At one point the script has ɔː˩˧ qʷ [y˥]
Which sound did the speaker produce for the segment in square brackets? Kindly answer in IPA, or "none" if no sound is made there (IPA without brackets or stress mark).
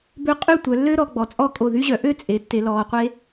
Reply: e˥